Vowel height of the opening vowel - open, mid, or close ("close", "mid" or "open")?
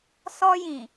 mid